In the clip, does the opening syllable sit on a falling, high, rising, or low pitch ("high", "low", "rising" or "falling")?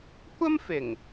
high